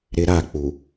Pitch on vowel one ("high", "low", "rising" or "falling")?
high